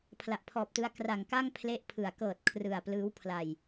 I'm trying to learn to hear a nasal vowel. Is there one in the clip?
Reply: no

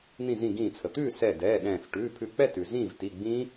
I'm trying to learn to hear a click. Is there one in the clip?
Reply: no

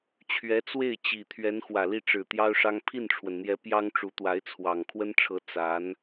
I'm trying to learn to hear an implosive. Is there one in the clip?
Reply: no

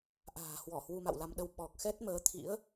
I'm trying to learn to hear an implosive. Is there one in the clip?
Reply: yes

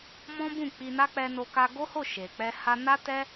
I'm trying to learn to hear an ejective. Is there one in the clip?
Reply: no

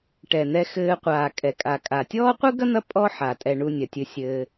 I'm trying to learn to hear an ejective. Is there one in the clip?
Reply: yes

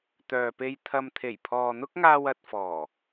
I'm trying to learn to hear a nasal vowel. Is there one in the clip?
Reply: no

